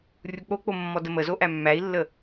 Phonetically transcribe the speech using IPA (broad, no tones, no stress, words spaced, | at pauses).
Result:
rʲuk͡pok͡po mːɔdəməzo ʔæmːæi̯lːə